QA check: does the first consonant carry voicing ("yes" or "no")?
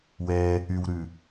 yes